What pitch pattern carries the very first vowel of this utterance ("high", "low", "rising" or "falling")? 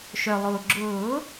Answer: low